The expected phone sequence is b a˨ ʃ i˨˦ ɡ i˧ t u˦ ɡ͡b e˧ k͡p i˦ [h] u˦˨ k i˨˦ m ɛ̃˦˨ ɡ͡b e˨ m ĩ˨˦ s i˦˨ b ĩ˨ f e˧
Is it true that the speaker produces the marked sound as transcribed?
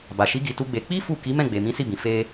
no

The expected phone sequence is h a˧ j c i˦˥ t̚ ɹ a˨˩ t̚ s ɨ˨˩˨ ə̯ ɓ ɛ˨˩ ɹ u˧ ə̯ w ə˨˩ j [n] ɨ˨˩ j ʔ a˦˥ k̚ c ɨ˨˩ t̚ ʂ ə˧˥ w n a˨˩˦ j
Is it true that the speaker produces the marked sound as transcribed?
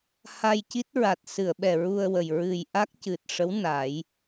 no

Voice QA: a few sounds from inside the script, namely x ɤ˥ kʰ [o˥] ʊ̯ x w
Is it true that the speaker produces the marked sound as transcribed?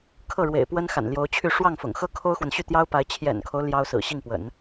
yes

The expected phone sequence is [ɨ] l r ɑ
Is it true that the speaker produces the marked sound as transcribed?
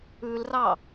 no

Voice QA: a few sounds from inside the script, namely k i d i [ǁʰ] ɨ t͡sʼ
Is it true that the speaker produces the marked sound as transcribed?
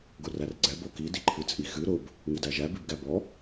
no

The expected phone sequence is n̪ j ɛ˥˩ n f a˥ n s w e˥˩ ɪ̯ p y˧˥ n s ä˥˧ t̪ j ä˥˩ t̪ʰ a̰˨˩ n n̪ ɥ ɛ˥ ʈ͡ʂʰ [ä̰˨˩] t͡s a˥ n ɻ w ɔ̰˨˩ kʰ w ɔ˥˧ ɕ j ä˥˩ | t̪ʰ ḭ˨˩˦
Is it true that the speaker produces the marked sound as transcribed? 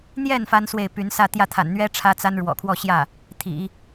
no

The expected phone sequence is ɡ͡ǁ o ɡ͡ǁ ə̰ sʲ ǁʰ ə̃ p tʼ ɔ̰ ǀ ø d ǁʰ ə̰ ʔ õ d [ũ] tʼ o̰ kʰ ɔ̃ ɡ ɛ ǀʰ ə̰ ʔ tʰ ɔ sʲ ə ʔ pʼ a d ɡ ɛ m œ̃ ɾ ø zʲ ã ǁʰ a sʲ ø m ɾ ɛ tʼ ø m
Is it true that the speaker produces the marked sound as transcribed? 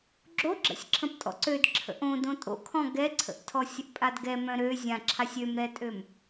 no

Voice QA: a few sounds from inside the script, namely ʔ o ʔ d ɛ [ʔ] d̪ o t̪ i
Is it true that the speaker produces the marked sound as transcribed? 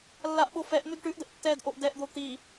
yes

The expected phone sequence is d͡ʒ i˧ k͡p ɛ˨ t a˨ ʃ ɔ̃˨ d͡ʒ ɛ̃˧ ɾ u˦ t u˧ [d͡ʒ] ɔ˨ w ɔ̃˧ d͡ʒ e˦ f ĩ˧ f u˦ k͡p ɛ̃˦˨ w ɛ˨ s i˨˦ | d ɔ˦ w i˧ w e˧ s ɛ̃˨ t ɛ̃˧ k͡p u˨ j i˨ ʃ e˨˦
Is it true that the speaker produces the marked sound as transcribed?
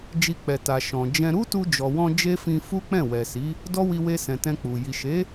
yes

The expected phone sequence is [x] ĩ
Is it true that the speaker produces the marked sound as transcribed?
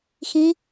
yes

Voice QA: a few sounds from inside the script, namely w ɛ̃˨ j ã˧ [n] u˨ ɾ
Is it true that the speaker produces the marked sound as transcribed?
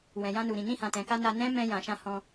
yes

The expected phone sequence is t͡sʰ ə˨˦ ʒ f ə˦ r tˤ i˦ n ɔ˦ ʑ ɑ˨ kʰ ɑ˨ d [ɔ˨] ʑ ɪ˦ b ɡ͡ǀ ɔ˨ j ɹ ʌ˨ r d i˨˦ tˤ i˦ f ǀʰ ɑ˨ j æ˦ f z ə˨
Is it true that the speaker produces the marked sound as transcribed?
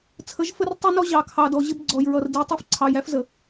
yes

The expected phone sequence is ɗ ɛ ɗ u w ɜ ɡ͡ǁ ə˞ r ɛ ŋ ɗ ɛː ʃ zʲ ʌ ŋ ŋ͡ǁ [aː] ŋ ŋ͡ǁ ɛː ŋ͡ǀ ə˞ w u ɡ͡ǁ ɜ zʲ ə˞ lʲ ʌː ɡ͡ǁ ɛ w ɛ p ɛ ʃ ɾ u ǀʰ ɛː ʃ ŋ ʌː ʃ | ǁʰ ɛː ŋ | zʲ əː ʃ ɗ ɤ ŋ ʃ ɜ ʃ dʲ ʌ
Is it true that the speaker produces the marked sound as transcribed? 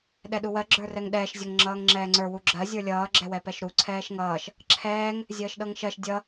no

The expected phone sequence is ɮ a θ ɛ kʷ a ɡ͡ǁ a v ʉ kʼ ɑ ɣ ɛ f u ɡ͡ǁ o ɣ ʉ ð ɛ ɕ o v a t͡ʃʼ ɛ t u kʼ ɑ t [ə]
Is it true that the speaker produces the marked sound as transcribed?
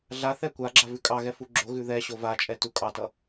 no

